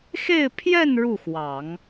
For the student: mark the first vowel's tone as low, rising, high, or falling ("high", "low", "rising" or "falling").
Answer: falling